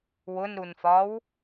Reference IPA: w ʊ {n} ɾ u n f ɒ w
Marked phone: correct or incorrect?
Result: correct